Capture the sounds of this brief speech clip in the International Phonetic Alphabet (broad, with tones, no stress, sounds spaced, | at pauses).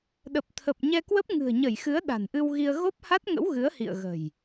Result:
ɗ ə˨˩ p̚ t̪ʰ ə˨˩ p̚ ɲ ɛ˧ k w ə˦˥ p̚ ŋ ɨ̤˨˩ ə̯ ɲ ə˧˩ j x ɨ˨˦ ə̯ ɗ a̤˨˩ n ʔ ɨ˧ w ɣ i˧ ə̯ ɣ o˦˥ p̚ h a˦˥ t̚ ŋ ə̰˧˥ w ɣ ɨ˨˦ ə̯ h ḭ˧˨ ə̯ ɣ ə̤˨˩ j